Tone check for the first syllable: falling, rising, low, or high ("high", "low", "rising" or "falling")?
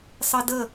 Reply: high